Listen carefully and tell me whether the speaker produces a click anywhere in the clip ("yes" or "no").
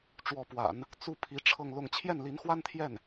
no